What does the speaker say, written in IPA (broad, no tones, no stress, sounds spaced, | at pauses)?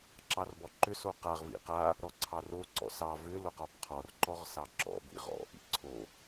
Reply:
ǁ ɑ r b ɔ ǃ ʏ s o q a ʁ v ḭ q a | ɾ ɔ ǀʰ ɑ r o ǀ ɔ̰ s ɑ v ʏ l o q ɔ b qʰ ɔ r ǃ ɔ ʁ s ɑ ǁ ɔ̰ b ḭ ʁ ɔ̰ ʔ ḭ ǀʰ o